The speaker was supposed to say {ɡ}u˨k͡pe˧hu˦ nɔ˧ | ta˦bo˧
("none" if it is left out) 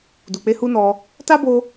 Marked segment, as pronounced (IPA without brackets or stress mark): d